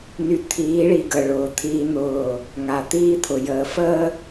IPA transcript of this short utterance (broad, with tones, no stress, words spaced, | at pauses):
ny˨t̪ʰiː˨˦ɭi˨ ɡə˨ɭʊː˨t̪ʰiː˦n̪ʊː˦˨ | ŋa˨t̪iː˦t̪ʰʊ˨ jəː˨ fəː˦